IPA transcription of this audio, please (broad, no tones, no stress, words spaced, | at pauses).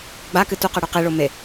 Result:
ɡ͡bakɨ tuqɨ ɽʉqiɭo me